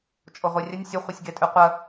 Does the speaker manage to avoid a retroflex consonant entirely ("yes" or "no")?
yes